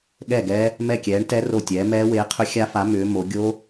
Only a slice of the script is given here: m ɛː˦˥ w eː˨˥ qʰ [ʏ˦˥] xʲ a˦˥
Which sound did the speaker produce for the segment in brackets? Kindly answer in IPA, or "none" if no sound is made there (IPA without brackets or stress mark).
ʏ˦˥